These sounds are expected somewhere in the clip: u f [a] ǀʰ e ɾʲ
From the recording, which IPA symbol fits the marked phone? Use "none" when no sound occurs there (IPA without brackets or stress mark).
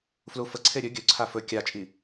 ə